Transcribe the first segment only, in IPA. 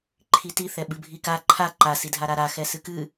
ǃʰ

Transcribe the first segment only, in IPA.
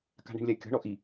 k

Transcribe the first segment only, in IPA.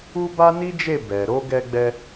u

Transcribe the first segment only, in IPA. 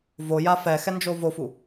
v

